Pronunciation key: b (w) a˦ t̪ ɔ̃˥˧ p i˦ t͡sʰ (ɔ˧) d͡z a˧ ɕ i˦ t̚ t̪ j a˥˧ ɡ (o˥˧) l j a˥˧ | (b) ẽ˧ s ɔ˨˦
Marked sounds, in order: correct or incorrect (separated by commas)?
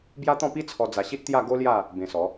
incorrect, correct, incorrect, correct